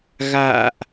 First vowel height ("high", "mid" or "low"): low